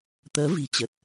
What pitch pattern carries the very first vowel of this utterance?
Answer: rising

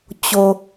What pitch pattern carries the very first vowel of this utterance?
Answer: low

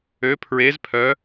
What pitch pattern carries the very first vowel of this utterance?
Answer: rising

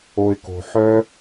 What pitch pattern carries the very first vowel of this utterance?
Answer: low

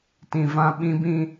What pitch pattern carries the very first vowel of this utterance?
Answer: low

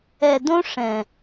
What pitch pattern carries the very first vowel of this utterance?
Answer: low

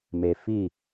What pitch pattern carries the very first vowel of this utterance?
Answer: low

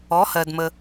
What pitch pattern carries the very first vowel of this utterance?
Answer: rising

